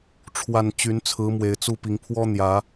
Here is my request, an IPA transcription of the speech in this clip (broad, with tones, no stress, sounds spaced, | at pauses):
ʈ͡ʂʰ w a˥˨ n t͡ɕ y˨˦ n t͡sʰ ɹ̩˨˦ m w e˨˩ ɪ̯ t͡s u˥˨ p i˨˦ ŋ pʰ w ɔ˦ n̪ j ä˨˦